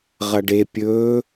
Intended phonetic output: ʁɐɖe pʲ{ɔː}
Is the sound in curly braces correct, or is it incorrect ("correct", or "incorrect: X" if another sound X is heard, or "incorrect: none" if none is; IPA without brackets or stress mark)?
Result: incorrect: ɵː